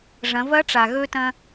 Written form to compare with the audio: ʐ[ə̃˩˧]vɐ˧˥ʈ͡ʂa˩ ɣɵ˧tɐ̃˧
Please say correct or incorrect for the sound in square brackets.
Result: incorrect